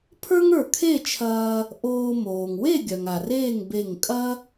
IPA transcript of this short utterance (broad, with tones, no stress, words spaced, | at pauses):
pʰə˞˥ŋə˞˧˩kʰe˥˨t͡ʃʰɐː˧ | ʔoː˧ moː˩ŋwe˥˨ɡʲœ˩ŋ a˩reː˥˨ŋ be˧˩ŋkʼɐ˥